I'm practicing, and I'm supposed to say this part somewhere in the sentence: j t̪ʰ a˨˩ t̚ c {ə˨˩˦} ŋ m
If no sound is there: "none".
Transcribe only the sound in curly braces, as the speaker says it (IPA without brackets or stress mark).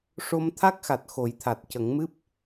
ə˨˩˦